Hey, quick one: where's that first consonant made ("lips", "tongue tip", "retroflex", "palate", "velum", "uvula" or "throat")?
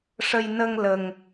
retroflex